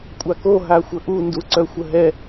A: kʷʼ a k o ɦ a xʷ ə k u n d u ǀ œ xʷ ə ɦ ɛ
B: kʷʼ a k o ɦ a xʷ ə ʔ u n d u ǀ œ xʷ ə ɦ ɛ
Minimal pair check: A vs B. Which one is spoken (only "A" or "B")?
B